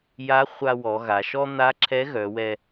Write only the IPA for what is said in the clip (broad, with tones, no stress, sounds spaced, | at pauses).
j a˧˥ χʷ a˧ w ɔ˩˧ ɣ a˩˧ ʃ ɔ˥ n̪ a˧˥ ǁʰ ɛ˧˥ ɣ œ˩˧ w ɛ˧